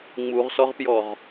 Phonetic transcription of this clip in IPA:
ŋ͡muʁsɔʁpjɔʁ

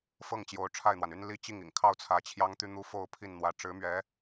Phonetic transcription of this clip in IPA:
fɤ˥˩ŋ t͡ɕjo˧˥ʊ̯ʈ͡ʂʰa˥˩ɪ̯n̪wa˩ny˥n li˥˧t͡ɕi˥˩ŋḭ˨˩ŋ kʰɑ˥˩ʊ̯t͡sʰä˧˥ t͡ɕʰjɑ˥ŋt̪y˥ n̪u˧˥ fo˥˧ʊ̯pʰi˥˩nn̪wä˧˥ ʈ͡ʂɻ̩˧˥mɥɛ˧˥

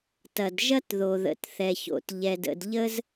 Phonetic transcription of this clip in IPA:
tɐ˩d ʒɐ˥tðo˩ðə̰˩t θɛ˩ço̰˩t ʎɛ˩də̰˩dʎə˥z

